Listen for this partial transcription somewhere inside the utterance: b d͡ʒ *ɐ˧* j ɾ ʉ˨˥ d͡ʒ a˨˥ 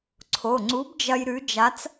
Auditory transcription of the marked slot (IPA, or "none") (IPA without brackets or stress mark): ɐ˧